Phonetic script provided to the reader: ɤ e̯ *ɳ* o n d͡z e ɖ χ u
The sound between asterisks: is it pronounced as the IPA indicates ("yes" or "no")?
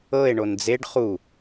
yes